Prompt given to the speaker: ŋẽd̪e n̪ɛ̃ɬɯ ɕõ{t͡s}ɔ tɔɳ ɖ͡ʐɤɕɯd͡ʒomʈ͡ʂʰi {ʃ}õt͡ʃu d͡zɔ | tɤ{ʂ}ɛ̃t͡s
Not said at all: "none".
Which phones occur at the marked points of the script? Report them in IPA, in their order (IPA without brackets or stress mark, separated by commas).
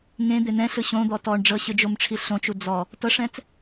d̪, ɬ, ʂ